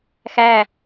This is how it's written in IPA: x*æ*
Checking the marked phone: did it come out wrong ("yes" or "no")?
no